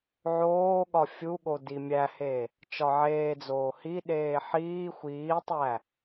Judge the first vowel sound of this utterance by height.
mid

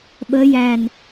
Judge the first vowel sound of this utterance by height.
mid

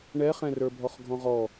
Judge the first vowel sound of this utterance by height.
mid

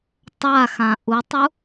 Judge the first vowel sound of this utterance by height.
low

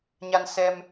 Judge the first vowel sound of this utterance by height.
low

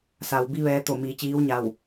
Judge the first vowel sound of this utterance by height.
low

